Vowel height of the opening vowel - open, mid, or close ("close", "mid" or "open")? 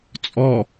mid